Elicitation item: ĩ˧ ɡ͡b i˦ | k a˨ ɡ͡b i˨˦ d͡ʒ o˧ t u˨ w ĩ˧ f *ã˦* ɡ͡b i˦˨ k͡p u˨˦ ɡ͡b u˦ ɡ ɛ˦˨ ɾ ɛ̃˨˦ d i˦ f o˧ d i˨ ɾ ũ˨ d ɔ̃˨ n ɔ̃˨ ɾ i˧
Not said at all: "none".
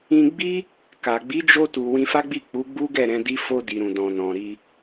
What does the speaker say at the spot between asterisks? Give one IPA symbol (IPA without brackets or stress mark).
a˦